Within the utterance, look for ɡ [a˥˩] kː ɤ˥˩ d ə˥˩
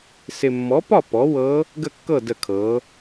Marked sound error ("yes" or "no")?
yes